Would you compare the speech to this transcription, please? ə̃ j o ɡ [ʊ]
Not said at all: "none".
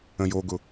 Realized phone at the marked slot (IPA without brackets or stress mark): ʊ